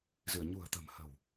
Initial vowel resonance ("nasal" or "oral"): oral